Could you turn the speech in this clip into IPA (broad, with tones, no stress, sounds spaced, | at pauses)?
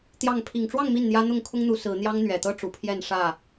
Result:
t̪ j ɑ˥˨ ŋ pʰ i˨˩ ŋ ʈ͡ʂ w ɑ˥˨ ŋ m i˥˨ n n̪ j ä˦ n̪ ʊ˥˨ ŋ kʰ ʊ˦ ŋ n̪ u˨˦ s ɹ̩˨˦ n̪ j ɑ˦ ŋ n̪ ɥ ɛ˨˩ t̪ ɤ˦ ʈ͡ʂ u˨˩ pʰ j ɛ˥˨ n ʂ ä˥˨